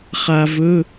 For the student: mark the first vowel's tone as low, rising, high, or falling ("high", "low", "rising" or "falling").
low